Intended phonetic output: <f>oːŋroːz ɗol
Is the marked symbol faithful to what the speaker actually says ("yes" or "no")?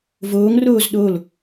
no